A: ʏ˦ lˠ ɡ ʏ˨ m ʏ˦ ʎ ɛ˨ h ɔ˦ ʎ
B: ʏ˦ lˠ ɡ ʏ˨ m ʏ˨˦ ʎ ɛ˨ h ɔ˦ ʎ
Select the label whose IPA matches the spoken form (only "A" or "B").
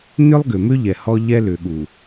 A